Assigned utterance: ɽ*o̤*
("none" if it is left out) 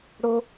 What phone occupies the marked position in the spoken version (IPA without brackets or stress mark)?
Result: o